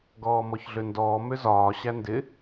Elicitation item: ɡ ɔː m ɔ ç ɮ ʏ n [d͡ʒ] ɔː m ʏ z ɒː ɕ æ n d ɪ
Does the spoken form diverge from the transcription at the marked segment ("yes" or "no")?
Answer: yes